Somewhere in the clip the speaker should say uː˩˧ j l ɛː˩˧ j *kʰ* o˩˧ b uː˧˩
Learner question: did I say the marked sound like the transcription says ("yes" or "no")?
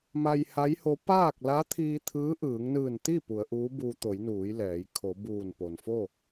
yes